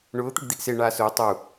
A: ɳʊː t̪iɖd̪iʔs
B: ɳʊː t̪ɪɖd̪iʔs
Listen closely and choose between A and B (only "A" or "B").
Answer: B